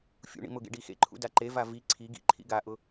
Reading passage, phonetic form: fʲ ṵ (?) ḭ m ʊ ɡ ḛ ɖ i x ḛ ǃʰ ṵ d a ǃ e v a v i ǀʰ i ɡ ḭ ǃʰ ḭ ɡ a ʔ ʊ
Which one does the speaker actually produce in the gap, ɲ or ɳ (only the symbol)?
ɳ